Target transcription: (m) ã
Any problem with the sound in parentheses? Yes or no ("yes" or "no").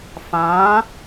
yes